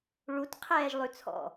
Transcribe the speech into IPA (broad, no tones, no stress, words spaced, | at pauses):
ɭutqʰɛːʒ lˠʉt͡sʰɔ̰